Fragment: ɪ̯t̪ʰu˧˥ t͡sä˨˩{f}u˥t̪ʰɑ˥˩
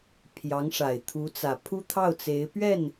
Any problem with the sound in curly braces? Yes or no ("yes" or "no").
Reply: yes